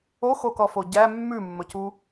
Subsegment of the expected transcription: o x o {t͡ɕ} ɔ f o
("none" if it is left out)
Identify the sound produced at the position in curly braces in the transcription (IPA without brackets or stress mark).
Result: k